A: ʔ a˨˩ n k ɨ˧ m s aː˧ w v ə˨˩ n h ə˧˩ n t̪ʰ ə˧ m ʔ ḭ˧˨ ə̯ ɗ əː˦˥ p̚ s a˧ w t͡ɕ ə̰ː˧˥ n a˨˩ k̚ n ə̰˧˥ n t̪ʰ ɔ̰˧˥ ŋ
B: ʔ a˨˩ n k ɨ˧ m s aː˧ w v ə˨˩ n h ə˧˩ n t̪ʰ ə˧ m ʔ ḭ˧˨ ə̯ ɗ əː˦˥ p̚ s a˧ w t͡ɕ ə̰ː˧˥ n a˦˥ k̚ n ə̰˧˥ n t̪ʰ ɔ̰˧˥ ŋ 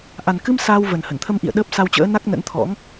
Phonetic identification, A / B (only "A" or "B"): B